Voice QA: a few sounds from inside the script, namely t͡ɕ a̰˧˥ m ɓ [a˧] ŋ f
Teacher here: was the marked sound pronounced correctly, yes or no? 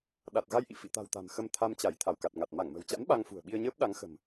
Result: yes